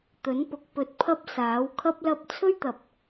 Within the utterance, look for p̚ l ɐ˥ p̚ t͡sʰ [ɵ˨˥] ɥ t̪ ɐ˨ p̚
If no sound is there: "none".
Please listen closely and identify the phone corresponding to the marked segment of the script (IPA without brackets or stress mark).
ɵ˥